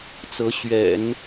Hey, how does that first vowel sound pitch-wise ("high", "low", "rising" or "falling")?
rising